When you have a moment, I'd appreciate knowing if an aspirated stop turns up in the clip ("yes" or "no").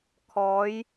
yes